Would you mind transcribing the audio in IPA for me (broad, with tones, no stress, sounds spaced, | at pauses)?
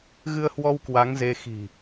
ɣ ɨ˧ ə̯ h w ɔ˧ w k w a˨˦ ŋ z e˧ x i̤˨˩